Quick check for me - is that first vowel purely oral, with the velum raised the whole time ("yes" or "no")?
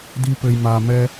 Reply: yes